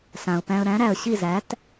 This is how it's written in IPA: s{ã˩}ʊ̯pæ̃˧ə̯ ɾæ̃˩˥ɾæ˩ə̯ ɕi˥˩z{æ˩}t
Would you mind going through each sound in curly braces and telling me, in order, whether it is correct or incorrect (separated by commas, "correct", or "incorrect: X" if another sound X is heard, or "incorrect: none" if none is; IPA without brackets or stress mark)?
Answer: correct, incorrect: æ˩˥